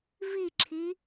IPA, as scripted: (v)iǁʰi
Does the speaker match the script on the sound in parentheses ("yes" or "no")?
yes